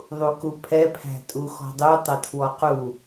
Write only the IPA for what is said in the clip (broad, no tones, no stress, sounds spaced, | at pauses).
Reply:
ðˤ u k u pʰ ɛ pʰ æ̤ tʼ u x ɔ̤ dˤ u tˤ ɛ tʰ w ɔ q u